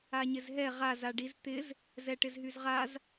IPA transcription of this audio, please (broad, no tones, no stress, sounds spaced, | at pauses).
a ɲ ɪ z ɦ ɛ ʁ a z a ɖ i z t̪ ɪ z | z ɛ ʈ ɪ z ɦ y z ʁ a z